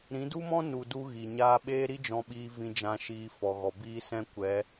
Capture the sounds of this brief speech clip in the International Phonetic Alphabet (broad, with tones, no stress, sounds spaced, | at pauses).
ɾ ĩ˨˦ d u˦ m ɔ̃˦ n u˨ d u˧ ɣ i˨ ɲ aː˦ ɓ eː˦ ɾ i˦ d͡ʒ ɔ̃˧ ɓ iː˧ v ĩ˧ d͡ʒ ã˧ ʃ iː˧ f ɔ˨ ɣ ɔ˨ b iː˦ s ɛ̃˦ kʷ ɛ˨˦